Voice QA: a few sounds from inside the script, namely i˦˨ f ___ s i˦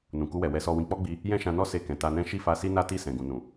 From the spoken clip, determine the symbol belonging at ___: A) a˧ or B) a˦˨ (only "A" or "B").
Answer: A